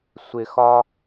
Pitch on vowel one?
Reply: low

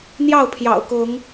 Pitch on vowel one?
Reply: falling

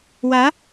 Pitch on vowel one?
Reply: rising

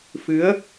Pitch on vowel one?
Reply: rising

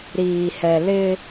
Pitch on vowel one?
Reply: low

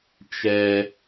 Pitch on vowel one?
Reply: high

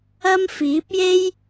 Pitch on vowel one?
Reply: high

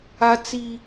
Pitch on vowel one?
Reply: high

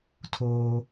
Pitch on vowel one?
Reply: high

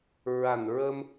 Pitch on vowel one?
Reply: low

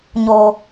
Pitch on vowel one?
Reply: high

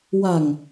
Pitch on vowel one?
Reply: low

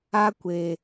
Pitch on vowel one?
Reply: high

